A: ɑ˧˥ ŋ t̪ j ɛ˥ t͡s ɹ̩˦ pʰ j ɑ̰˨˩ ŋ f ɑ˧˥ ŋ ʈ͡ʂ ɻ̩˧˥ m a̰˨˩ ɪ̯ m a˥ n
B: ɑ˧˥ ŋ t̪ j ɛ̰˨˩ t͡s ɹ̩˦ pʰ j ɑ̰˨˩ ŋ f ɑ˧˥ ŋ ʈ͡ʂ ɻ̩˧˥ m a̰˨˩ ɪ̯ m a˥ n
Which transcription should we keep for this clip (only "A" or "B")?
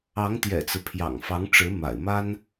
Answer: B